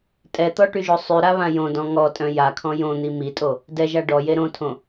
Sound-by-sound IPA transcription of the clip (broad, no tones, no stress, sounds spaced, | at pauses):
tʼ ɛ t̪ ɔ ʈ y ʒ o sˤ y ɾ a β ã j õ d ɔ̃ ŋ ɔ tʼ œ̃ j a kʰ ɔ̃ j õ n̪ i m i tʼ o | d ɛ ʒ a ɖ ɔ j e ɾ õ tʰ õ